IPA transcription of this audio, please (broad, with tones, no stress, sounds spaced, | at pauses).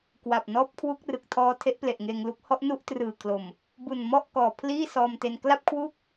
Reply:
k w a˨˩ p̚ n ɔː˦˥ p̚ kʰ w u˦˥ k̚ r ɯ˨˩ k̚ tʰ ɔː˧ tʰ e˦˥ ʔ p l e˨˩ ʔ ŋ eː˧ ŋ l u˦˥ k̚ h ɔ˦˥ ʔ n u˥˩ ʔ t r ɯː˨˩ kʰ l o˨˩ m | b u˨˩ n m ɔ˥˩ ʔ k ɔː˨˩ pʰ l iː˥˩ s ɔː˧ m t e˧ n k l a˥˩ p̚ kʰ w u˥˩ k̚